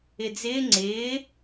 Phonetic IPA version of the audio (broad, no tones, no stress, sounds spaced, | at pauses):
ɪ d͡z ɪː ŋ͡ǀ ɪː